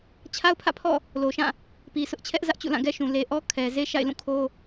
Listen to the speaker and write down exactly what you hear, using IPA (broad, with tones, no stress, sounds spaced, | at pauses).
t͡ɕʰ a˦ ʊ̯ pʰ ä̰˦˨ pʰ ɔ̰˦˨ | l o˨ ʃ ã˦˨ | p i˨ sʰ ʊ˦ ʔ t͡ɕʰ ɛ˦ ʔ z ä˦ ʔ t͡ɕ ṵ˦˨ l ã˦˨ ɡ ɛ˦ ʃ ũ˨ l e˨ ʔ ɔ˦ kʰ ɛ˨ z e˦ ʃ a̰˦˨ ɪ̯ l ũ˦˨ kʰ o˦